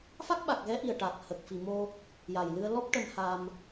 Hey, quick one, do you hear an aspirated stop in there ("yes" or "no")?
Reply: no